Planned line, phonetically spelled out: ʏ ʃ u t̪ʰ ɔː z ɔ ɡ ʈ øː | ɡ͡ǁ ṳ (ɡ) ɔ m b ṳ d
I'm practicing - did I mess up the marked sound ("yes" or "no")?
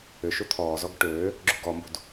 no